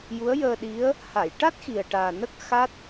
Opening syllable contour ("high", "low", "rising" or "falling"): rising